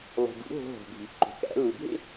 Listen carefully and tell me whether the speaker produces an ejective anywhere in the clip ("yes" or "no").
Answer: no